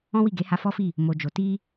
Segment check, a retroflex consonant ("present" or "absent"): absent